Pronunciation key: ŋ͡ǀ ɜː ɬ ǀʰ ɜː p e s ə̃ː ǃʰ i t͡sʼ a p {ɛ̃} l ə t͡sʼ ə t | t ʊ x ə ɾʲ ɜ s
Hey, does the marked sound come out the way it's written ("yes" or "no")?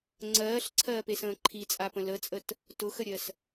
no